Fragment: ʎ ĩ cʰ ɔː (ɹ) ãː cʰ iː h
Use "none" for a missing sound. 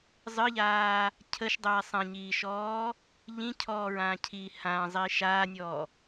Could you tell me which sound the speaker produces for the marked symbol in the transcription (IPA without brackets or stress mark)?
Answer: ɹ